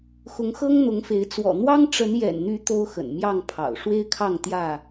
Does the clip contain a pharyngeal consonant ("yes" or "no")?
no